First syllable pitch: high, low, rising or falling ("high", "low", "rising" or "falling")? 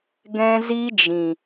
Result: high